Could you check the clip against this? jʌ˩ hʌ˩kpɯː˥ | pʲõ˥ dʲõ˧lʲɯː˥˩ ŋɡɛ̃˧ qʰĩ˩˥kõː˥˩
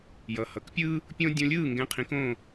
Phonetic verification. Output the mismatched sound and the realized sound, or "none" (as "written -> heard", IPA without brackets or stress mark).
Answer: p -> pʲ